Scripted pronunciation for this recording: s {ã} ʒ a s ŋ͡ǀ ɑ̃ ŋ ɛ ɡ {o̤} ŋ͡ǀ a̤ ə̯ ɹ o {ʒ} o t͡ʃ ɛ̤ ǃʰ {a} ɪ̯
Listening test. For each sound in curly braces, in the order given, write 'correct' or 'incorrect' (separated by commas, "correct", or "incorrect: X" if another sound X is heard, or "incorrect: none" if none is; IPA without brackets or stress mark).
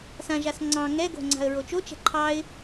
correct, correct, incorrect: t͡ʃ, incorrect: ɑ